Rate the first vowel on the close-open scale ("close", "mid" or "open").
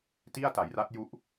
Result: close